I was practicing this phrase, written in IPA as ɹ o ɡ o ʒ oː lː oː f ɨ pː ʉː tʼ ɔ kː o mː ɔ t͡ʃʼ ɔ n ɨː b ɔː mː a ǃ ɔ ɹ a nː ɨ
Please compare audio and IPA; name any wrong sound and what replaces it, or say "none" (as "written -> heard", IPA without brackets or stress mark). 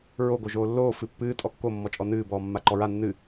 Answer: ʉː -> ɨː